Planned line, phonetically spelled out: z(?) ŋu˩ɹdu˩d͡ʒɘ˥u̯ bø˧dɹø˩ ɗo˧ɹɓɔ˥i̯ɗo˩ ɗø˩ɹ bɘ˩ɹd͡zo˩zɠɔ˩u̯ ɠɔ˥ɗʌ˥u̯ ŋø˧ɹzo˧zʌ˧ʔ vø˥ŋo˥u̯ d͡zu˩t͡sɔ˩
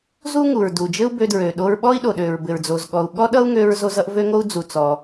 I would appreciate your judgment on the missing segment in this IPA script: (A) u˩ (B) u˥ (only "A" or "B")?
B